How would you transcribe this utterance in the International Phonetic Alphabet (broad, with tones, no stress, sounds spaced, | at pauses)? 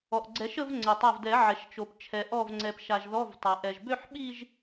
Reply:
ɔ˩ ʔ ɡ͡ǀ ɛ˨˩˦ ʃ ə˥˧ v ŋ͡ǀ ɛ˩ tˤ a˧˩ v d ɛ˨˩˦ ʕ ɛ˩ ʃ t͡ʃ o˩ p t͡ʃʰ ɛ˩ ʔ ɔ˧˩ v ŋ͡ǀ ɛ˩ p ʃ a˩ ʒ ð ɔ˧˥˧ v tˤ a˩ ʔ ɛ˩ ʒ b ø˥˧ ħ ɓ i˥˧ ʒ